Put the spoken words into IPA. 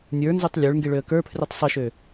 nʲ ə˞ n z u tˤ lʲ ə˞ ɭ ŋ ɡ i ɭ ø ə̯ k ə˞ pʰ r i tˤ sˤ ɨ ʃ ø

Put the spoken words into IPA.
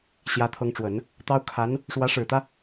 ɕ j ä˧˥ t̪ʰ ɤ˧˥ ŋ ʈ͡ʂ w ə˨˩˦ n | t̪ ɑ˥ ʊ̯ kʰ a˧˥ n | ʂ w ä˧˥ ʂ ɻ̩˨˩ t̪ ä˦

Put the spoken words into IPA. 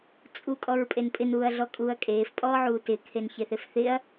t͡sʼ u kʼ ɔ ɹ pʼ e n pʼ ɪ n uː ɐ̯ ɮ ɔ kʼ uː ɐ̯ kʼ eː f pʼ ɔː ʕ uː t ɪ kʰ e n ç e θ e f θ ɪ ɐ̯

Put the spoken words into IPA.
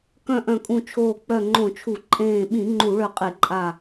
k œ̃˧˩ ʔ œ̃˧˩ kʼ ũ˧˩ t͡ʃʰ oː˧˩ k͡p œ˧˩ ŋ͡ǃ õ˧˩˧ t͡ʃʰ u˧˩˧ ǃʼ ẽː˧˩ ɓ ĩ˧˩˧ ŋ͡ǃ u˧˩˧ ɭ œ˧˩ qʼ e˧˩˧ ǃʼ a˧˩

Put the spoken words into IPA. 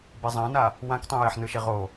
b i zˤ ã n a | w ã k tˤ ĩ j ɛ ħ n ɯ ʃ e ʁ o

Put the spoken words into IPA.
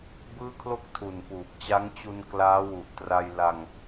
b ɯː˥˩ kʰ l o˥˩ k̚ tʰ u˨˩ n p uː˨˩ p̚ t͡ɕ a˦˥ ŋ t͡ɕ u˧ n k l aː˦˥ w u˨˩ ʔ t r a˧ j l a˧ ŋ

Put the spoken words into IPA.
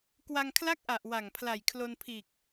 k w a˧ ŋ kʰ l a˥˩ k̚ ʔ a˨˩ ʔ w a˨˩ ŋ pʰ l a˨˩ j kʰ l o˧ n pʰ iː˨˩ k̚

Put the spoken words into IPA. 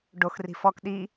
ɖ o x r i̤ f ɔ k ɗ i

